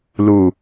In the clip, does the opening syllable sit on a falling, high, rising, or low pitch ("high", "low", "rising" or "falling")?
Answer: low